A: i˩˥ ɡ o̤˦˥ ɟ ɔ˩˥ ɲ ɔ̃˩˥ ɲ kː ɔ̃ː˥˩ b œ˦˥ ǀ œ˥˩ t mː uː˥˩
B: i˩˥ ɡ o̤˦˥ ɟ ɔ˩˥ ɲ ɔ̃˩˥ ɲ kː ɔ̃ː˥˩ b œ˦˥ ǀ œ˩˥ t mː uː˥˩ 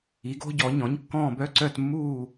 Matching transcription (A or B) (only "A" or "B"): A